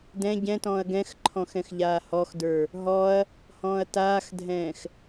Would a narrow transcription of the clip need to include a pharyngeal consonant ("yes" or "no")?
no